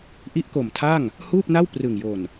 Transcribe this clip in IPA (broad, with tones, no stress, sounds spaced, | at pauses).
ʔ i˦˥ ʔ k o˨˩ m tʰ a˥˩ ŋ | h uː˥˩ p̚ n a˥˩ w p r ɯ˨˩ ŋ j o˨˩ n